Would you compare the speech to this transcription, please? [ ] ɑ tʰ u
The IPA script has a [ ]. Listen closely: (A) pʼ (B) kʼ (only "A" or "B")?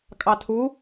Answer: B